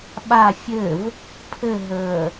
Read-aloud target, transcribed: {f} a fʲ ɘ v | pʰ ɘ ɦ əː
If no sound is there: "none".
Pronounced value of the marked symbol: ɓ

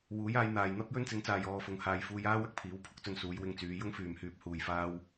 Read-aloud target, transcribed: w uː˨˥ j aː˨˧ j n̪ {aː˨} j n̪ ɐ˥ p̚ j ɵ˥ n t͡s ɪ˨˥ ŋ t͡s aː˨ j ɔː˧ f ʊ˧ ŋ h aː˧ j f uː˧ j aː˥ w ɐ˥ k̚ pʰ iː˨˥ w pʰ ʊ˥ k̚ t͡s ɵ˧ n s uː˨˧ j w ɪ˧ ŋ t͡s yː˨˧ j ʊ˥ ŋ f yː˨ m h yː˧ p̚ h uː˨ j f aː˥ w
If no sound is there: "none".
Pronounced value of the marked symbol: aː˨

